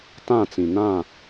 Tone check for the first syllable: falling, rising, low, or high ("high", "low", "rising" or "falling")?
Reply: falling